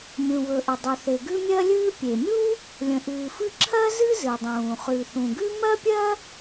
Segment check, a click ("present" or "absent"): present